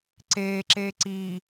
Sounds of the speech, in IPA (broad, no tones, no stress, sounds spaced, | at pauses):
ǀ eː ǁ eː ǀ iː